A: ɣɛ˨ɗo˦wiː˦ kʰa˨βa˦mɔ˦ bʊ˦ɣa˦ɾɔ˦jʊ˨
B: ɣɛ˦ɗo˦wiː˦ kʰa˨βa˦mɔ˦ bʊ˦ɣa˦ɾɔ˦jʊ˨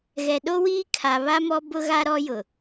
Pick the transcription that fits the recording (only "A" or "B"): A